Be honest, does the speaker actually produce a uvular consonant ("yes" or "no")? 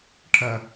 no